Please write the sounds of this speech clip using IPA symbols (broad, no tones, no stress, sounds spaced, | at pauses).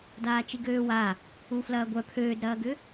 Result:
d aː t͡ʃ i ɡ øː w a | u f l ɐː ɡʷ œ pʰ øː d ɾ ɐː ɡ ʏ